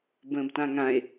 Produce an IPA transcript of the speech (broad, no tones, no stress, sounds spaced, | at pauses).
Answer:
b ə̃ː b t ã ŋ ã e̯